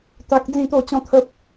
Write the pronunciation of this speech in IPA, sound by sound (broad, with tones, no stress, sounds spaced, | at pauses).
t̪ a˦ k̚ d͡z ĩ˥˧ t̪ o˥˧ t͡ɕ ɔ̃˦ t̪ʰ ə˦ p̚